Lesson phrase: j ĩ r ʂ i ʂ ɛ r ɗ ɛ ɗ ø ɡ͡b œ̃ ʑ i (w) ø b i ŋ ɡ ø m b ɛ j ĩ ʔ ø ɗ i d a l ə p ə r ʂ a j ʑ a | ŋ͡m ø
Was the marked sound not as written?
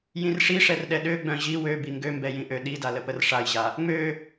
no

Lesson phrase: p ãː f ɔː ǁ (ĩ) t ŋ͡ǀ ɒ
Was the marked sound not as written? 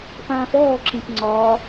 no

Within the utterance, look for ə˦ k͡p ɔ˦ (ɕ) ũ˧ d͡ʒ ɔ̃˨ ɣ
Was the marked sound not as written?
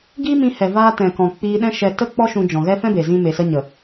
yes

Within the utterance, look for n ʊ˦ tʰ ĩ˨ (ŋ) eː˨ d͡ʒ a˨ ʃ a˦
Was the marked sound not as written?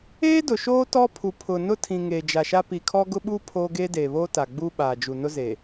no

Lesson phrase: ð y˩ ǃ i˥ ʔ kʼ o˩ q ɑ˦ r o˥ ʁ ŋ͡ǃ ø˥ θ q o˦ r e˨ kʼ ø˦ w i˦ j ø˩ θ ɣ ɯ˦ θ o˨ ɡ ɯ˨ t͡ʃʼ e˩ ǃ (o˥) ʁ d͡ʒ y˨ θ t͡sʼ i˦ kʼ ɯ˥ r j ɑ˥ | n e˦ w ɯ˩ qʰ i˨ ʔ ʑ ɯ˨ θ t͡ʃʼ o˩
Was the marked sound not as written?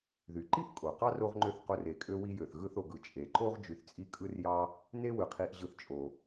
no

